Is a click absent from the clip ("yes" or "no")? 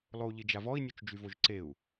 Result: no